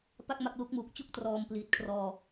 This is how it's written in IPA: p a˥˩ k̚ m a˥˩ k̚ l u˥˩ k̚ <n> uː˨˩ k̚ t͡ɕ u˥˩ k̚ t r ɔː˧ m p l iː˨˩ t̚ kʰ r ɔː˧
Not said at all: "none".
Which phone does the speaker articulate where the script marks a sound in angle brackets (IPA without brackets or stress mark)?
m